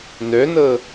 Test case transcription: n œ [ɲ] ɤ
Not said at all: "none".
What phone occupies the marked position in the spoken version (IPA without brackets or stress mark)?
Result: n